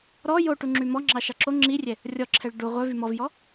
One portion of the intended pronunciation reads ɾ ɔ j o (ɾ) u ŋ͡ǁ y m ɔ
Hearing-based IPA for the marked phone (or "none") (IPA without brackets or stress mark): ʈ